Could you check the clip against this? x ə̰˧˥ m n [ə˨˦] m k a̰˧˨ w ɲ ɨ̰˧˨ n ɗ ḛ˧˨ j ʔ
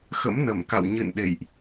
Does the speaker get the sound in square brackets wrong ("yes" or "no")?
yes